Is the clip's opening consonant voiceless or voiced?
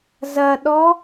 voiced